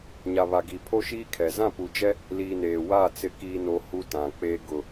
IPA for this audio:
ɲ a˨ β a˨ ɡ i˨ pʰ o˦ ʃ iː˦ kʰ ɛ˨ z ã˦˨ p u˨ d͡ʒ ɛ˦ | l iː˨ n eː˨ w a˦˨ t͡s ɪ˨ k iː˨ n o˨ h u˦ t ã˨ k͡p eː˦ ɡ ʊ˨

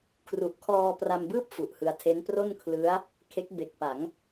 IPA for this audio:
kʰ r u˦˥ ʔ kʰ ɔː˧ p r a˧ m b ɯː˥˩ p̚ f u˨˩ ʔ h ɯ˧ a̯ tʰ e˦˥ n p r o˥˩ n kʰ l ɯ˦˥ a̯ | kʰ e˦˥ k̚ b e˨˩ k̚ p a˩˦ ŋ

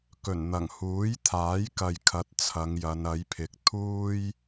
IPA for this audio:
k ɵ˨˩ n n̪ ɐ˨˩ ŋ h uː˨˥ j t̪ʰ aː˨˥ j k ɐ˨ j kʰ ɐ˨˥ t̚ t͡sʰ ɐ˨˧ ŋ j ɐ˨˧ n ɐ˨˥ j pʰ ɪ˨˥ k̚ t̪ʰ uː˥ j

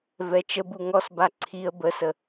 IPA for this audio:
v ɛ t͡ʃ ə b u ŋ ɔ s b a ǀʰ i ə̯ b ə s ə

